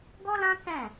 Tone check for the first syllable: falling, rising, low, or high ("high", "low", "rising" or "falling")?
high